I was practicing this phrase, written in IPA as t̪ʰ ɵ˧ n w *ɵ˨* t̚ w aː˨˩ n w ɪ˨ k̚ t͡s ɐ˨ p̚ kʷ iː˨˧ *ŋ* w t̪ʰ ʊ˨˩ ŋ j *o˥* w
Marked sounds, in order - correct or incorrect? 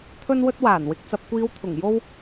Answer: incorrect: ɵ˧, incorrect: none, incorrect: o˧

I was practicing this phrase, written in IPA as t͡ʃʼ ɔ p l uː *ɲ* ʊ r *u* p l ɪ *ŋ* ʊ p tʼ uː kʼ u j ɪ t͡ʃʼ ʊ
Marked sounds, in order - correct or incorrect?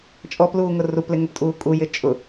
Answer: incorrect: ŋ, correct, correct

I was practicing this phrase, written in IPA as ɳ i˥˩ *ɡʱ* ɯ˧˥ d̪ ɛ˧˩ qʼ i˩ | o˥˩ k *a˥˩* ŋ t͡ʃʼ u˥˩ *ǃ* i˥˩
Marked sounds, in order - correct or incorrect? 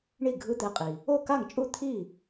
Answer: correct, correct, incorrect: t̪ʰ

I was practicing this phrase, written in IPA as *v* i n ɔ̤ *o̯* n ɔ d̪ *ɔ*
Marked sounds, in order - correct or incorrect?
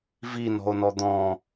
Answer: correct, correct, incorrect: ɔ̃

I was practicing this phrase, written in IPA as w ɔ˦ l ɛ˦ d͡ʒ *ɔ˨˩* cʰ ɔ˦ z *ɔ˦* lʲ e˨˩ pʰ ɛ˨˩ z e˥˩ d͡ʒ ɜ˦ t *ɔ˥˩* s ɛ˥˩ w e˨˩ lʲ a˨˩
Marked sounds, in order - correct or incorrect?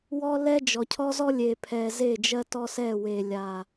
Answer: correct, correct, incorrect: ɔ˦

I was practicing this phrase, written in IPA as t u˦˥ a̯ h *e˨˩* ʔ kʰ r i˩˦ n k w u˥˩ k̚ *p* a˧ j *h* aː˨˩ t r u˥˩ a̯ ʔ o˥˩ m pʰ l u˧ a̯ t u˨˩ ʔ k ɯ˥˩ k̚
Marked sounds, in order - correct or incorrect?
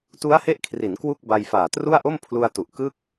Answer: incorrect: e˦˥, incorrect: b, incorrect: f

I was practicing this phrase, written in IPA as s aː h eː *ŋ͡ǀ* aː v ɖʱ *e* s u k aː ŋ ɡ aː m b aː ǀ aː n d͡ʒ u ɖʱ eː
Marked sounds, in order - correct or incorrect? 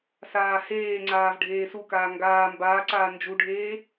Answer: correct, incorrect: eː

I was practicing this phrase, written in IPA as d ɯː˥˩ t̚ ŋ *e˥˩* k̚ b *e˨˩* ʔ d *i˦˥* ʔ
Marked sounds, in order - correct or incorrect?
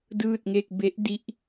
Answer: correct, incorrect: e˦˥, correct

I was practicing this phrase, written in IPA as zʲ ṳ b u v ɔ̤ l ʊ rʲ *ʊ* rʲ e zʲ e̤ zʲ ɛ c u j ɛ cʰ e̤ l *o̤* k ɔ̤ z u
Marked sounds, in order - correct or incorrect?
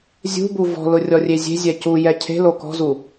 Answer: incorrect: ɔ, incorrect: o

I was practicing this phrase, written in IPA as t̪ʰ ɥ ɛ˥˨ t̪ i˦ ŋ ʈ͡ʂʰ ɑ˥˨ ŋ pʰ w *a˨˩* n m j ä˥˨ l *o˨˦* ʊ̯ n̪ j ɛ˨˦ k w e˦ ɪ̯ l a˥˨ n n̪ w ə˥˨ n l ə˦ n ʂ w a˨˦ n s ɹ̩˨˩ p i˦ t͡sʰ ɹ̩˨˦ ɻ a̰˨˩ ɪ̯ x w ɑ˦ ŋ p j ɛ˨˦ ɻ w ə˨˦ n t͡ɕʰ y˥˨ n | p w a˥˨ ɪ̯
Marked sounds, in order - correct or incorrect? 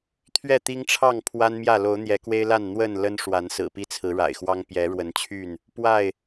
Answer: incorrect: a˦, correct

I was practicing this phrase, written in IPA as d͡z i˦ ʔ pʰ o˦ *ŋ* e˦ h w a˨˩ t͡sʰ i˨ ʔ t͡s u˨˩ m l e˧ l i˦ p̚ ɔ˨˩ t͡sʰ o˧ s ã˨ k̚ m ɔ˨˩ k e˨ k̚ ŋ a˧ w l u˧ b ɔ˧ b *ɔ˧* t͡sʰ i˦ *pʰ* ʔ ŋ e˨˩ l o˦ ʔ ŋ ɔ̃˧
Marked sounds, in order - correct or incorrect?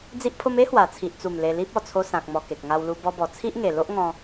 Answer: incorrect: m, incorrect: ɔ˨˩, incorrect: none

